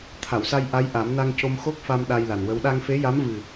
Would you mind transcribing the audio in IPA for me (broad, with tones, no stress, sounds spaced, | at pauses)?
t̪ʰ a˨˩˨ w s a˧ j ʔ a˧˥ j ʔ a˨˩˦ m n a˧ ŋ c o˧ m x o˦˥ k̚ f a˧ m ɗ a˧ j l a˨˩ n w ə˧˥ w ɗ a˧ ŋ f e˧˥ j a˧˥ m v ɨ˨˩